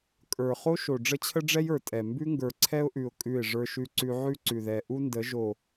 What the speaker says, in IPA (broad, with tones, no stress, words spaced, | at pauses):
kʼə˞˨ χo˦ʃo˨ ɖ͡ʐə˦t͡ɕʰə˦ɖ͡ʐɛ˦j ə˞˨tʼɛ˨ mbʉ˦ŋɡə˞˨ǀʰɛ˦ʊ̯ʔʉ˨ʊ̯ kʼʉ˦˨ɪ̯ʐə˞˦ʃʉ˦ǀʉ˦ ʕʉ˦ǀʉ˨ðɛ˨ ʔu˦ndə˨˦ ʒo˨